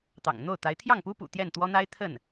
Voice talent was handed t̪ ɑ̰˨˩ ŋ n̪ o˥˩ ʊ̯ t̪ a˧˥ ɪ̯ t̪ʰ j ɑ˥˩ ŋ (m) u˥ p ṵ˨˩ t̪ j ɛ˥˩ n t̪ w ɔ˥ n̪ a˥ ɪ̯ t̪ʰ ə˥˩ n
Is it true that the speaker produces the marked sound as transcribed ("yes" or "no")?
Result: no